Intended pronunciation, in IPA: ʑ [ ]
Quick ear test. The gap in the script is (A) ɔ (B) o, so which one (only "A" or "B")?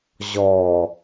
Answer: A